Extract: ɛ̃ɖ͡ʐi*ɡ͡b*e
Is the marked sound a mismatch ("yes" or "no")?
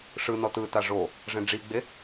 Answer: no